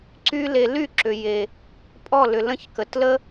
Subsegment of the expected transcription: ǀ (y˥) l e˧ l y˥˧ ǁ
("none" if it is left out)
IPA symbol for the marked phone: y˥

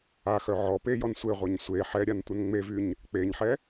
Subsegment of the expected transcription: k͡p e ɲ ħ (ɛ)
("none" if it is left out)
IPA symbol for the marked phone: ɛ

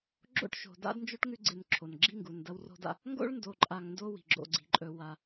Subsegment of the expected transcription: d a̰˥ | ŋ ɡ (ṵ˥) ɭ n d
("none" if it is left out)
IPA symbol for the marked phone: o̰˥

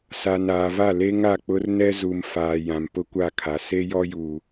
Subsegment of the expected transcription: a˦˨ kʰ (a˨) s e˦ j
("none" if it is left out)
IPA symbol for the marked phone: a˨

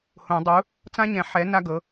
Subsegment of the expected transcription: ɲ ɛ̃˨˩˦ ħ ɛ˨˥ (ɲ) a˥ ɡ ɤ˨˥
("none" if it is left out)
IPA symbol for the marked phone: n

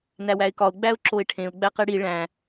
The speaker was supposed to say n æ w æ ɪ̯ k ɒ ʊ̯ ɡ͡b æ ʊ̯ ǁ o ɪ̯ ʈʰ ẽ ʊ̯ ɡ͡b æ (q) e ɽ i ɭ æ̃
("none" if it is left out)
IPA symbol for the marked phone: q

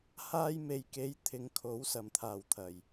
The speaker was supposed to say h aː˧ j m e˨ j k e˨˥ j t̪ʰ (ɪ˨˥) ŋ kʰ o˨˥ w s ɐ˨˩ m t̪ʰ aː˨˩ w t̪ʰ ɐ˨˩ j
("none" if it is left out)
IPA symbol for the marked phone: ɪ˨˧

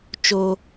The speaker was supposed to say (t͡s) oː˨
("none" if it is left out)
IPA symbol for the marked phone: t͡ʃ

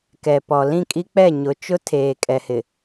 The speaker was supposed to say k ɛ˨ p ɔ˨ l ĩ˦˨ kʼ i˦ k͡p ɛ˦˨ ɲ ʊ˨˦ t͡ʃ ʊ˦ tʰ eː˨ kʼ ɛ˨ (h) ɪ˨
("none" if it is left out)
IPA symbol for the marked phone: h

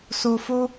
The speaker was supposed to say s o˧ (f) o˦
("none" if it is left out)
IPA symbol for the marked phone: f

